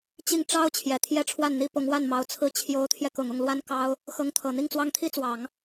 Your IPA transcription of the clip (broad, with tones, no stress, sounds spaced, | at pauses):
t͡ɕ i˥˩ ŋ ʈ͡ʂ ɑ˥ ʊ̯ t͡ɕʰ j ɛ˨˩ t̪ʰ j ɛ˥˧ ʈ͡ʂʰ w a˥˩ n n̪ i˥ p ʊ˧˥ ŋ w a˥˩ n m ɑ˧˥ ʊ̯ t͡sʰ ɹ̩˥˩ t͡ɕʰ j o˧˥ ʊ̯ t̪ʰ j ɛ˧ k ʊ˨˩ ŋ ʊ˥˩ ŋ l w a˥ n k ɑ˥ ʊ̯ | x ɤ˧˥ ŋ t̪ʰ ɤ˨˩ n̪ i˥˩ ŋ t͡s w ɑ˥ ŋ t̪ʰ i˥ t͡s w ɑ˨˩˦ ŋ